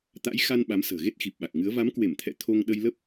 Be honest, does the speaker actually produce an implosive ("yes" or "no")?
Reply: yes